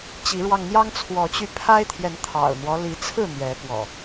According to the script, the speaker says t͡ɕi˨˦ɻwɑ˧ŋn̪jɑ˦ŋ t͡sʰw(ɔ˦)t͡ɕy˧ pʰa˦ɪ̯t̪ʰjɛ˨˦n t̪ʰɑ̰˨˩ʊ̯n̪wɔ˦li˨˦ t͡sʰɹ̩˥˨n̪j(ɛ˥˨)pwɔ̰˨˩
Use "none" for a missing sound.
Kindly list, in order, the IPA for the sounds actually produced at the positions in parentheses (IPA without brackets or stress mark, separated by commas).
ɔ˨˦, ɛ˨˦